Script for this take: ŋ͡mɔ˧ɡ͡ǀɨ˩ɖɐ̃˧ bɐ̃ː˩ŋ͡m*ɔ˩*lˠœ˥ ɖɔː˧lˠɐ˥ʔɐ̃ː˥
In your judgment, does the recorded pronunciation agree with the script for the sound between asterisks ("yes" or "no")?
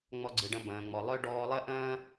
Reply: yes